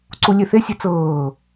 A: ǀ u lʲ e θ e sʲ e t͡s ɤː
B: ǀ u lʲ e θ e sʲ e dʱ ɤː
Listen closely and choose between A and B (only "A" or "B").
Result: A